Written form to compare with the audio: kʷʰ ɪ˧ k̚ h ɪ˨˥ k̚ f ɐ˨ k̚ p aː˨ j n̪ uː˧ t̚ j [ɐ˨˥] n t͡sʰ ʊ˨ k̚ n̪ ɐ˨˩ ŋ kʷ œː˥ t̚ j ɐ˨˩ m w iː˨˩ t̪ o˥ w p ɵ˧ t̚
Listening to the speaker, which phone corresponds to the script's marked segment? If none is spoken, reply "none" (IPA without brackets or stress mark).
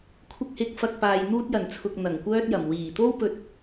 ɐ˨˩